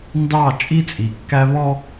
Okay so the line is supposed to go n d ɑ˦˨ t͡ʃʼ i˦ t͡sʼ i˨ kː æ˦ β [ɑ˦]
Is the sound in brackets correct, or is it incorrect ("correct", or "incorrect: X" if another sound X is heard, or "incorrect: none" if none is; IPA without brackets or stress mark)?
incorrect: ɔ˦